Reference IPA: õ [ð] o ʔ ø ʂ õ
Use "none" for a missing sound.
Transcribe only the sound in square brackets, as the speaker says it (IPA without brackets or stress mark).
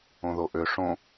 ð